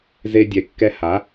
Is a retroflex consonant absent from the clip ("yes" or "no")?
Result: yes